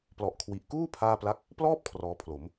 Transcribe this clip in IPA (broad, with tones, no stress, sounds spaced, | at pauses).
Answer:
p l ɔ˨˩ ʔ kʰ w i˨˩ ʔ k uː˥˩ pʰ aː˥˩ p l a˥˩ k̚ | p l ɔː˥˩ p̚ kʰ r ɔː˧ pʰ l o˩˦ m